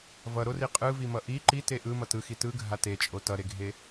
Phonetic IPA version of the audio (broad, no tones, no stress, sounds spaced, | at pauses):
v ʌ ɾ o r i qʼ ɯ v i m ʌ ʔ i ǃ i t e ʔ ɯ m ʌ t ɯ x i t ɯ ɡʱ a t e t͡ʃʼ o t ʌ ɾ e ɡʱ e